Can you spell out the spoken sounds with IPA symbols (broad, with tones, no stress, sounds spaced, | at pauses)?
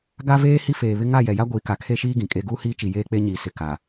ɡ a˦ v eː˦ h i˦ f eː˨ β ɪ˦ ŋ a˦˨ j ɛ˨ j a˦ ɡʷ iː˨ k a˨ kʰ e˦ ʃ iː˦ ɡ ĩ˨ kʼ e˦ ɡ uː˦ h iː˦ t͡ʃ i˨ j eː˦ k͡p e˦ ɲ iː˨ s ɪ˨ k a˨